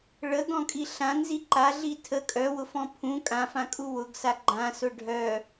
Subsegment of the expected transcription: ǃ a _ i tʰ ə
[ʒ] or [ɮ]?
ɮ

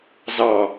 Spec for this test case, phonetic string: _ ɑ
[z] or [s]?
z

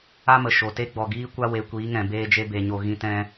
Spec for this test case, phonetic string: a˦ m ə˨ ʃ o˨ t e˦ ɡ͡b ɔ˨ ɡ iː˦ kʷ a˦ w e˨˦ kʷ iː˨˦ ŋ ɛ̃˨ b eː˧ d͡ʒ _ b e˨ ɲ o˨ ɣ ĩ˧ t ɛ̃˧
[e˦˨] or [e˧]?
e˧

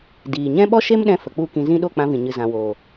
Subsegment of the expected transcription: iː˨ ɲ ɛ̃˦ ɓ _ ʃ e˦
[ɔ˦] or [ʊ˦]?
ɔ˦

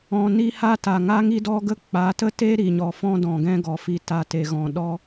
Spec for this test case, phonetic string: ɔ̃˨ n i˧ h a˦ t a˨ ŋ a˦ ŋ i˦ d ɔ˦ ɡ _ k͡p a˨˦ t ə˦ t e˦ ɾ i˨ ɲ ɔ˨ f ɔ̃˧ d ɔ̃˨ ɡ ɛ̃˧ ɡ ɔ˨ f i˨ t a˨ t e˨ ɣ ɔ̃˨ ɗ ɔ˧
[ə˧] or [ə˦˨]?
ə˦˨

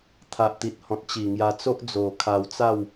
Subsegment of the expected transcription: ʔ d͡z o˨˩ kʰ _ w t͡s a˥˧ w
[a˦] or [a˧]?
a˧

